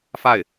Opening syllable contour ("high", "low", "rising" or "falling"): falling